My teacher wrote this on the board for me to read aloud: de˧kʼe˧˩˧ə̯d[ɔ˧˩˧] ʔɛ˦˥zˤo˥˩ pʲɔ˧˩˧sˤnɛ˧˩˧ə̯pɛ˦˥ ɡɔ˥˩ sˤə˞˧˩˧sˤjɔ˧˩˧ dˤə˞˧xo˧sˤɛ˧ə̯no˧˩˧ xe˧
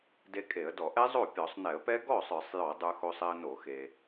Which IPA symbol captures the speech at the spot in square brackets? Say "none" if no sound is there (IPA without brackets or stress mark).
ɔ˧˩˧